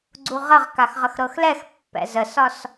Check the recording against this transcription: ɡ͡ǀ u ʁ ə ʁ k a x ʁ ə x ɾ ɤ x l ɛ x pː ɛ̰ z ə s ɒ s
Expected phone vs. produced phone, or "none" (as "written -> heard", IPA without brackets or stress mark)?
none